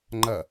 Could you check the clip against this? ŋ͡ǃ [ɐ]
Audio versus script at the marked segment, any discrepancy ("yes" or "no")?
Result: no